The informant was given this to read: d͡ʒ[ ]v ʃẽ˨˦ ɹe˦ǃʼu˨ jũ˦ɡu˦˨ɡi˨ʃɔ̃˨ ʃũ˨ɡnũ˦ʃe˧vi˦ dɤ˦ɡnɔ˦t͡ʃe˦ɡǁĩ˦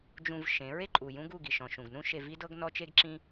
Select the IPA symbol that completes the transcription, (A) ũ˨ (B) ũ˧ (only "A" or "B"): B